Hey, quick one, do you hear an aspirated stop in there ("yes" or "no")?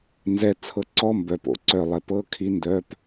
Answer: yes